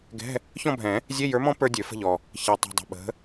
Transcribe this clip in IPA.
ɡ ɛ̤˧˥˧ | ç ɔ̃˥˧ bʱ ɛ̃˨˩˦ | zʲ e˧˥˧ j ə˞˨˥ m ɔ̃˦˥ p ə˞˦˥ dʲ ø˨˩˦ f ə̤˥˧ ʎ ɔ˨ | ç ɛ˨ tˤ o̤˨ dˤ ə̤˨ ɓ ə̤˨˥

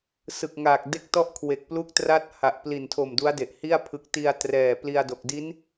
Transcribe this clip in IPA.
s ɯ˨˩ k̚ ŋ aː˨˩ k̚ d e˦˥ k̚ t ɔ˦˥ ʔ kʰ w e˨˩ k̚ p l u˦˥ k̚ t r a˦˥ t̚ h a˨˩ ʔ p l i˨˩ n tʰ o˨˩ m d u˦˥ a̯ d e˨˩ ʔ h i˥˩ a̯ pʰ ɯ˨˩ k̚ t i˧ a̯ t r ɛː˨˩ p l i˧ a̯ d o˨˩ k̚ d i˦˥ n

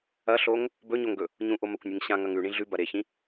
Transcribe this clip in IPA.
ɐ ɬ o ŋ | b ɵ ɲ o ŋ ɡ ɵ | ɲ ũ ʔ o m ɐ kʷ nʲ ɨ ŋ ɕ ã ŋ ɐ ŋ ʉ ɳ ĩ ɮ ʉ b ɐ ɾ e ç ĩ

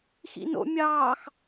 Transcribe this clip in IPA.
x ḭ n o̰ mʲ ɑː x

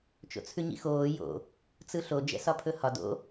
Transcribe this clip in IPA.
t͡ʃ o̰ t͡sʰ ʉ ɲ ḭ x oː j o̰ | t͡s ɯ ɬ o d͡ʒ ɛ̰ s ɒ pʰ ɵ h ɒ d o̰

